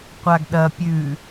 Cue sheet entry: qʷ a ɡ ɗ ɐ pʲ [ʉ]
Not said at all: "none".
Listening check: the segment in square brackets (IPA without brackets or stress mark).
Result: ʉ